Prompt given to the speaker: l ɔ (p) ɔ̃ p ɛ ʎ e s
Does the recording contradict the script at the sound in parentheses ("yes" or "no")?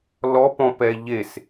no